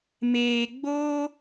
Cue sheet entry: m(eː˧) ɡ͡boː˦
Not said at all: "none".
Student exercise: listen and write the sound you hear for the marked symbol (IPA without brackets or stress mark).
eː˧